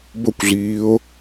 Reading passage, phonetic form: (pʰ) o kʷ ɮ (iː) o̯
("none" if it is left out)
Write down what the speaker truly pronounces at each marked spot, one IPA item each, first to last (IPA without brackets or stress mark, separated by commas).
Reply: b, iː